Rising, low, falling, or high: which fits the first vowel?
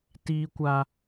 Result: high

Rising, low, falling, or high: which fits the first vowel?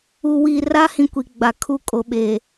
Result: low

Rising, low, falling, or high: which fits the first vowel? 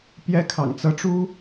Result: high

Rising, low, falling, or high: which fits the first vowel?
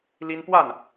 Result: high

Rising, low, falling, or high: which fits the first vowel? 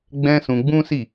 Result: high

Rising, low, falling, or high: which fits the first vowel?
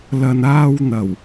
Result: low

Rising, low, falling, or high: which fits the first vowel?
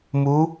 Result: rising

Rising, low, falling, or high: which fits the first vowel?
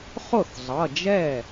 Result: falling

